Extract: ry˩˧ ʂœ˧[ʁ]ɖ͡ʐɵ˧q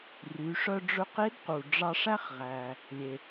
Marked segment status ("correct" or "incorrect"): incorrect